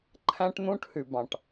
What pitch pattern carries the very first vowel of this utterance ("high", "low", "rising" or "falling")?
high